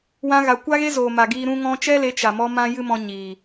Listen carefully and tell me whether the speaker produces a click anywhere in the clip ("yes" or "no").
no